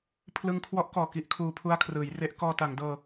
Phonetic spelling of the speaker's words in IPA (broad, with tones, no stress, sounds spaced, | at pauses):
pʰ l ɯ˧ ŋ kʰ w ɔ˦˥ ʔ k ɔː˨˩ k i˥˩ ʔ kʰ uː˧ pʰ u˧ a̯ kʰ r ɯː˩˦ j r e˦˥ ʔ k ɔː˧ t a˩˦ ŋ d ɤː˧